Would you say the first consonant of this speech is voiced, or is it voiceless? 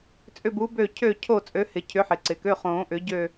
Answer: voiceless